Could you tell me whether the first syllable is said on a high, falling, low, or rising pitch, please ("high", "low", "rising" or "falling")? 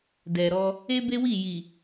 low